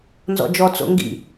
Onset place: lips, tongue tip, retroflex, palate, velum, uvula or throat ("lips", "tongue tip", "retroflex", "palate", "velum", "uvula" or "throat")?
tongue tip